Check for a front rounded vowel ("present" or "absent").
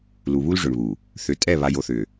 present